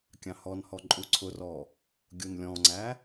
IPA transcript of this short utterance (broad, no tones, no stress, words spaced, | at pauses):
kʲɑ̃hɔnhɔ ǃʼuǀʰʊrɔ | ɡʲunlʲɔ̃ŋ͡ǀæ